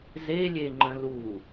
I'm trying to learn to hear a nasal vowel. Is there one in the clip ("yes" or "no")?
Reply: yes